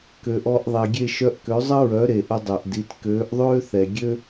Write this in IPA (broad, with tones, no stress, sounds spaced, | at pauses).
k ø˩ ʔ ɔ˧ ʔ ðˤ e˩ ɡʲ e˥˩ ʃ œ˧ ʔ k ø˩˥ zˤ ə˥ ɹ œ˩˥ ɾ e˩ ʔ ə˧ dˤ ɛ˩ ʔ d i˩˥ t k øː˩˥ ʔ ðˤ øː˥ θ ɛ˩ ɡʲ ø˥